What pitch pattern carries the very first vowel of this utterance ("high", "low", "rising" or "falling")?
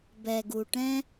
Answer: low